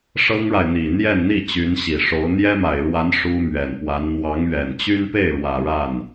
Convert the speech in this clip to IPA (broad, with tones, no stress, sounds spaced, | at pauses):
ʂ ɤ˥ ŋ ɻ a˨ ɪ̯ n̪ i˨˩ n̪ j ɛ˥˧ n n̪ i˥˩ t͡ɕ y˧˥ n ɕ i˨˩ ʂ o˧˥ ʊ̯ n̪ j ɛ˥ m a˨˩ ɪ̯ ɻ w a˧˥ n ʂ u˥ m ɥ ɛ˨˩ n p w a˧˥ n n̪ w ɑ˧˥ ŋ ɥ ɛ˨˩ n t͡ɕ y˥ n p e˥˩ ɪ̯ ɻ w ä˨˩ ɻ a˥˩ n